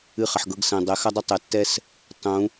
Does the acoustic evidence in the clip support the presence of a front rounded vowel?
no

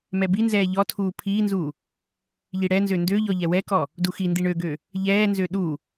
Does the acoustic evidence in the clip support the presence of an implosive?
yes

